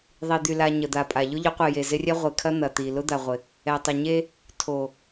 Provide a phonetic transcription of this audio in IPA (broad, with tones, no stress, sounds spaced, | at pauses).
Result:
ðˤ i˨ d̪ y˨ l a˨ ɲ ə˨ d̪ a˨ pʼ a˨ ʎ ʊ˦ ʎ ʊ˨˦ qʷ e˨ j e˨ z ɪ˦ rʲ ɛ˦ ʁʷ e˨ kʰ ɐ˦ n̪ ɐ˨ t̪ i˨ l ʊ˦ d̪ a˨ ʁʷ ɪ˨ | ɛ˨ tˤ ə˨ ɲ e˦ | tʰ o˨